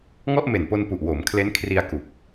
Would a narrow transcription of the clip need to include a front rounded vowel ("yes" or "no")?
no